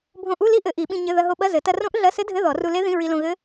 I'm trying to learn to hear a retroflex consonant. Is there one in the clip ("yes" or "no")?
no